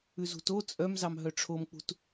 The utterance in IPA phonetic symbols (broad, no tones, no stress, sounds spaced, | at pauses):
ʉ z ṳ t o t͡sʼ œ m z ɑ m ɦ œ ʈ͡ʂʰ o m k͡p ṳ t